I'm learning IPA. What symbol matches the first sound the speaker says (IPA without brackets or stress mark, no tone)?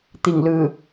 t̪